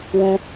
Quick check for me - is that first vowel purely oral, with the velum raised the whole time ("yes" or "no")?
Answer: no